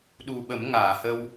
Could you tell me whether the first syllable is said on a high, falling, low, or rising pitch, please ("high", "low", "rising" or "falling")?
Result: low